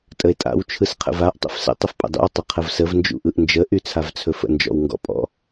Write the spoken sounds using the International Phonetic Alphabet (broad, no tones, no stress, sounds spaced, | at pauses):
tʼ ə e̯ tʼ a̰ w t͡ʃʰ ɯ s qʰ ə̰ v a ʔ tˤ ə̰ f s ə̰ tˤ ə f pʼ ə̰ dˤ ṵ o̯ tˤ ə qʰ ə v s ə v n d͡ʒ ṵ ʔ ɯ ʔ n d͡ʒ ə ʔ y t͡sʰ a v t͡sʰ ɵ f ə̰ n d͡ʒ ɔ̰ w ŋ ɡ ɔ̰ pʼ ɔ̰